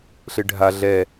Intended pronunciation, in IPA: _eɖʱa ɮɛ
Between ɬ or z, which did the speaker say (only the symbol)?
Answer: ɬ